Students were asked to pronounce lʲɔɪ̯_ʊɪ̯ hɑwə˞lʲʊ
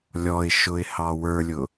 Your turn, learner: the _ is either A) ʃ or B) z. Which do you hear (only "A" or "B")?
A